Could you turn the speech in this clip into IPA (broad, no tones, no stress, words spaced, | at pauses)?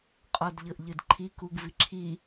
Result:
qʼɔdʎɤʔʎɯdǃʰi kuɡviǁʰi